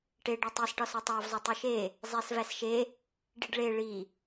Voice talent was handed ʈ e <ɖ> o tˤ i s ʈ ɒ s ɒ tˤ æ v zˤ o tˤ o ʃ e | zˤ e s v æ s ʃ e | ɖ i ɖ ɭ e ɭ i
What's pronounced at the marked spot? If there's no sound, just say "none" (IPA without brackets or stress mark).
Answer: ɖ